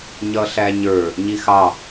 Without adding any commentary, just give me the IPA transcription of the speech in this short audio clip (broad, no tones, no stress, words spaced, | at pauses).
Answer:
ɲʌɬæɲə˞ | ɲixɑ